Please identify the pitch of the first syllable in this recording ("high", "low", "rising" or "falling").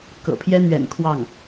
low